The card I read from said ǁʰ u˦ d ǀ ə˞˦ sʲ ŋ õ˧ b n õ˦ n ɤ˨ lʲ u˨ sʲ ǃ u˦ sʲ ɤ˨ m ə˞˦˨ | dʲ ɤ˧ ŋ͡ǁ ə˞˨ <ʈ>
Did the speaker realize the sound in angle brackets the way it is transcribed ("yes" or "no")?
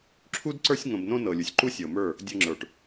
yes